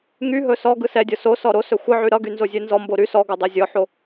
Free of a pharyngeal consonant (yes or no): no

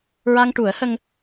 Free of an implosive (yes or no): yes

